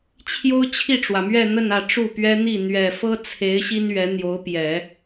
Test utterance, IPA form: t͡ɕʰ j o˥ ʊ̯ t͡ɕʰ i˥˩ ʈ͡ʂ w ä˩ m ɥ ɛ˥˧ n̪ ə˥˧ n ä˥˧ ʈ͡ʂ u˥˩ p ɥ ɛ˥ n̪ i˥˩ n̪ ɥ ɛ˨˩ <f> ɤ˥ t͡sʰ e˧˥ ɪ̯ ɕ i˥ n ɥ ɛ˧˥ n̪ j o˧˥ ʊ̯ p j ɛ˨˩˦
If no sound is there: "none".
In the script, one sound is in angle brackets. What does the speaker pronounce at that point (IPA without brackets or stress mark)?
f